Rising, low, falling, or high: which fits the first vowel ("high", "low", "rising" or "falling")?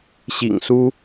low